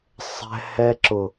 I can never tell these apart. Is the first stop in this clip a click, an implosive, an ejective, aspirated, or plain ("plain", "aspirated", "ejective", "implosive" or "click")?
click